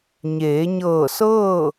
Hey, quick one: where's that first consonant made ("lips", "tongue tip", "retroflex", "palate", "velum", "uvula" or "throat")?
palate